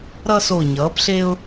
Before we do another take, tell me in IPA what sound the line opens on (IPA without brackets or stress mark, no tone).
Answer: ɾ